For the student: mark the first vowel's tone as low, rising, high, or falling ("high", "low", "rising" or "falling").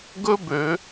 high